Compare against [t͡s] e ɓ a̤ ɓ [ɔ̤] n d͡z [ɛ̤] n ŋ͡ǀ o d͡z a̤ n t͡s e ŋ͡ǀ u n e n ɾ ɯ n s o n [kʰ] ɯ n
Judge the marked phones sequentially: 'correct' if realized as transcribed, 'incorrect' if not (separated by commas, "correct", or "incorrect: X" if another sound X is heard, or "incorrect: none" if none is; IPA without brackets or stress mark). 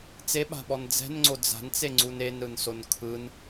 correct, incorrect: ɔ, correct, correct